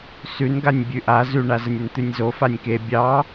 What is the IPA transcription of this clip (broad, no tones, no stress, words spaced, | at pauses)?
sʉnɡanʲ bʲʉʔa zʉɳazənʲən t̪ʉnʲzo fanʲke bʲɑ